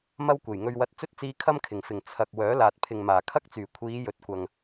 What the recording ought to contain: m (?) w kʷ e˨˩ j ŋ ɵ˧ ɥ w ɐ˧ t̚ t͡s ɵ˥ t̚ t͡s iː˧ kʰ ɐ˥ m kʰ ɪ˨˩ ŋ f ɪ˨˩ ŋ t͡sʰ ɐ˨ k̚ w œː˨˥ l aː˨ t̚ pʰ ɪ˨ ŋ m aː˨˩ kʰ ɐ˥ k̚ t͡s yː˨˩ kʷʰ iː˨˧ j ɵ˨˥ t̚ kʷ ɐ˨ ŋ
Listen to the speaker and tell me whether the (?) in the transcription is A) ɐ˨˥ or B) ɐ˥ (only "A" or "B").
B